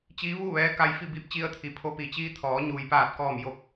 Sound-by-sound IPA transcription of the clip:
t͡ɕiː˧˥ʋuː˥˨ ʋɛː˧˥ka˧j fi˥˨ biː˧˥p̚t͡ɕi˧ə̯t̪ʰi˩pʰo˧ pi˩t͡ɕiː˧ t̪ʰɔː˩˧ɲuː˩jpaː˧˩t̚kɔː˧˩m jo˧˩k̚

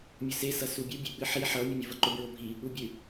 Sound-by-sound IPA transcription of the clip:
mʲʊse sʌsubʲu bʲeɓɨħi ħʌ mʲʊmʲuvʌǃʊ bɹobʱi | ubʲɨ

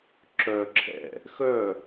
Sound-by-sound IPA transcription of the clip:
ǁœ ǁʰɛ̰ | xœ

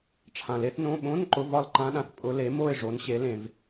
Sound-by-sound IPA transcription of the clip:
ʈ͡ʂʰã˩le˧˥θnõ˧˥˧ ɓõ˧˥˧n ǃʊ˧˥˧vɒ˥˨lǃã˧˥ɗã˩θ pʼʊ˧˥ le˩˥ mo˥˨ɪ̯ ʐo˩˥nɕe˩˥ lẽ˩v

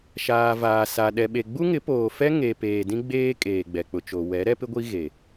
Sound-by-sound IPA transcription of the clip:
ʃaː˨vaː˨ sa˨ ɗɛ˨ɓe˨ ɡ͡bu˦ŋɪ˨˦poː˨fɛ˦ ŋe˨ peː˨dĩ˦ɡ͡beː˦ kʼeː˨ɡ͡bɛ˨k͡pʊ˨t͡ʃo˨ wɛ˨˦ɾɛ˦pɪ˦ɡʷi˦ ɣe˨

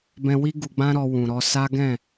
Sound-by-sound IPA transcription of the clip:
bɛ̃˧wi˦ ɡu˧ɡ͡bã˦ ɾɔ˧wũ˨ɾɔ˧ sa˦ɡɛ̃˦˨

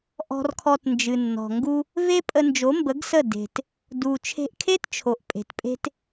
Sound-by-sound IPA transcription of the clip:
ʔɔ̤˧rkʰɔ˧tnd͡ʒɨ˨nːɔ̤˨ ŋɡu˧ | ve˦ pʼə˧nd͡ʒo˨˦mbə˨˦ɡsə˦˨ de̤˨t | du˧ t͡ʃʰe̤˧ʔkʰe˦tt͡ʃʰo˨ʔ pʼe̤˨tpʼe̤˦t

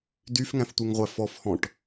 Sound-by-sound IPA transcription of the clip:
dyfŋæ̃ftʷeŋʁʷæ fɔfhɔ̃ʈ

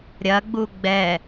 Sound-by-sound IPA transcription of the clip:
ɾʲɐɡ͡bu ɡ͡bɛ

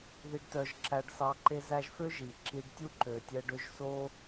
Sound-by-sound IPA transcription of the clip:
ði˦ɖtœ˦ʒ ǁæ˦ɖsɑ˦ǃe˥zæ˥ʒ fø˥ ʒi˨ǁi˦ɖ tʲu˥ǃø˨tʲɛ˦ɖø˦ʒ so˦

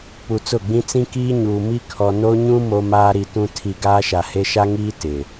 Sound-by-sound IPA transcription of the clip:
pu˨t͡sʊ˦˨ɡ͡bĩ˦ t͡sĩ˦kiː˦ɲuː˨ mi˦kʰɔ˨no˦ ɲũ˦ mo˦maː˦ɾi˨tũ˦ tʰi˨ ɡaː˦ʃa˨he˦ ʃa˦ŋiː˦ tɪ˨

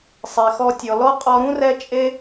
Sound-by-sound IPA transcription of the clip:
sˤe˨xɔ˧tʲɔ˨ lɔ˦qʼɔ˧ ɾũ˦rɛ˧ t͡ʃʼe˦

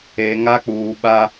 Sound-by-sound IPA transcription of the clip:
e˨ŋa˦k͡puː˨ɓa˦

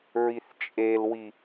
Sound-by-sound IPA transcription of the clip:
ɹiθt͡ʃʼelwi

